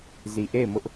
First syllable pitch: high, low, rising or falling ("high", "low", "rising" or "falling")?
low